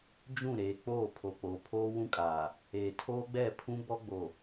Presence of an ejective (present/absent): present